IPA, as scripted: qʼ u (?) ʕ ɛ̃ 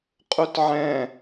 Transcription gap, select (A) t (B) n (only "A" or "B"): A